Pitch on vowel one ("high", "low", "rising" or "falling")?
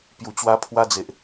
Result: low